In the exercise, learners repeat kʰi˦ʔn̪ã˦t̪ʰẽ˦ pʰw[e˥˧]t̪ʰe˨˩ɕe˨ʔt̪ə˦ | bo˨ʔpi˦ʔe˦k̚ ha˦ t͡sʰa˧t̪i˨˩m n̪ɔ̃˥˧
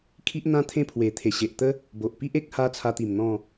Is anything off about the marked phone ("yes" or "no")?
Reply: yes